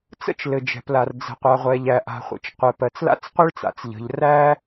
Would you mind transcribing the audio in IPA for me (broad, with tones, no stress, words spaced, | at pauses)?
t͡sə̰˥t͡ʃlɘ˩d͡ʒɛ̤˩pla˩r d͡zə̤˩qʷa˩ʁʷɛ˩ʎæ˩ ʔa̤˩χʷə̰˩t͡ʃqʷɘ˩ pɜ˩t͡sla̰˥t͡sqʷɘ˥ɭt͡sa̰˩t͡s ʎə̤˩ʎ ræ˥